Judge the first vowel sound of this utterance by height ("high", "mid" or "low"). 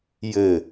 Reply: mid